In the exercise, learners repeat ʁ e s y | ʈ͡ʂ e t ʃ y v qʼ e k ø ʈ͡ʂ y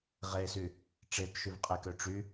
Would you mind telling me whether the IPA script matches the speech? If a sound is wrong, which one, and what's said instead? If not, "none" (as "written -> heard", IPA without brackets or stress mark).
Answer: none